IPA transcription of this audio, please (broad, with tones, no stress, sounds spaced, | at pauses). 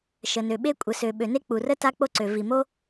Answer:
ʃ ə˩ n ø˩ ɓ e˥ kʷʼ ə˩ s ø˩ ɓ ø˩ n e˥ k͡p u˩ r ə˥ t a˥ k͡p o˥ ǀ ø˩ v i˩ m o˥